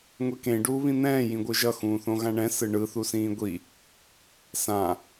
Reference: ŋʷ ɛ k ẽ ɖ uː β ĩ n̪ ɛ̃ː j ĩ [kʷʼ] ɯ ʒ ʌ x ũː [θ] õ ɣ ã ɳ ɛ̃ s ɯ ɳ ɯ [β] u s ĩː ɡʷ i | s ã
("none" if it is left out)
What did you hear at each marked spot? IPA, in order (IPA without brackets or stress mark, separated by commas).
ɡʷ, θ, θ